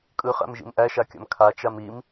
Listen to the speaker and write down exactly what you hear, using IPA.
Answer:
kʼɯχæ̰m ʒḭmʔæʃakʲa̰m kʰat͡ʃam im

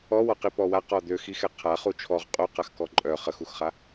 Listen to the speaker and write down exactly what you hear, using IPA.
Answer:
ɔwɔ qipɔwaqɔ d̪øxixɛ qʰa χut͡ʃʰɔʁ qʼoqaxkɔ ǃʼœ χəxuxχa

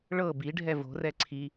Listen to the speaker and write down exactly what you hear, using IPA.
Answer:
ɭɤ biɖʱɛ vo̤rɛ ǀʰi

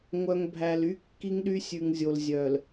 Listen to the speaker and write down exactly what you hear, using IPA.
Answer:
ŋʷœ˨ŋbʱæ˨l y˦ kːi˦ŋɗy˦sʲʉ˨ŋzʲo˨l zʲœ˨l

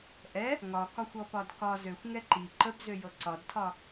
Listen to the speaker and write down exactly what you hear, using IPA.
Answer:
ʔɛ | ŋɒkɒxʷɔpɒd kɒ zøxʷŋɛ ǃi ǃəbzøjɤ ǀɒdtʰɒ

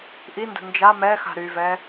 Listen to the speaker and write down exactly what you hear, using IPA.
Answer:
ʔində̤ nd͡ʒa mɛxa̤ ɾyvɛ

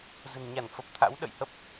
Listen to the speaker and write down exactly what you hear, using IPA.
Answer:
zə̤˨˩nɲa˧˩nfə˨˩p̚t̪ʰa̰˧˥w ɗə̰˧˨jhə˦˥p̚

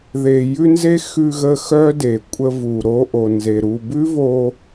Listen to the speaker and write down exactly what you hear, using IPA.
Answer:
ðe˧ jʉ˦nze˦ xʉ˧ɣə˧ xœ˦de˨ kʷʼə˧vu˨ ɾo˧ʔo˨ nze˨ɾu˧ bʉ˦vo˧

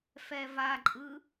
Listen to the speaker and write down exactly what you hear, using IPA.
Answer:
fɛvaǃʼɯ

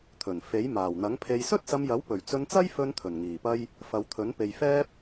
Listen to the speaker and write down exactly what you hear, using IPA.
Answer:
t̪ʰɵ˨˩n fe˨˥j maː˨˩wn̪ɐ˨˥ŋpʰe˧j sɵ˥t̚sɐ˧mjɐ˨˥w pɵ˨˩ɥt͡sɵ˧nt͡sɐ˥j fɵ˥nt̪ʰɵ˨˩nŋiː˨˩pɐ˥j | fɐ˨˧wt̪ʰɵ˨˥n pe˨jfɛː˥p̚

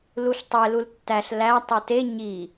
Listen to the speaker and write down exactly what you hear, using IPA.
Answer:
luɬtˤe lultːæɬ læ tˤute ɲi

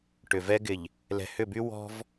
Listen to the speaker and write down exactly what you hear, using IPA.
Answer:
ʈʏ˨vɛ˦ ɡɪ˨ʎ | lɛ̤˨hʏ˦˨by˦ wɔ̤˦v

